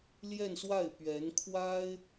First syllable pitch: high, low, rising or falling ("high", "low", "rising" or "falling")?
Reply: falling